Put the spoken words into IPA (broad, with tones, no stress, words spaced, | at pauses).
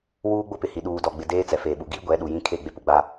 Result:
wuː˦ɡ͡bʊ˦pɪ˨hi˨ ɗuː˨dɔ˨ɡ͡bɪ˨ deː˦t͡sɛ˨feː˨ɓu˨ ɡi˦ ɡʷɛ˨˦ɗu˨jĩ˦ kʰe˦˨ɡ͡be˦pu˨ ɡ͡ba˦